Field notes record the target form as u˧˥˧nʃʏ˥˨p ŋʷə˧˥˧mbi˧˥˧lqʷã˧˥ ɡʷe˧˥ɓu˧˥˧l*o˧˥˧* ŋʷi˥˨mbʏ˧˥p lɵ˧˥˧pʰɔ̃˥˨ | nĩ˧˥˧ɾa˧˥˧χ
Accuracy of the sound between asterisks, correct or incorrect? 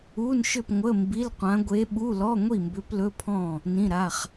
incorrect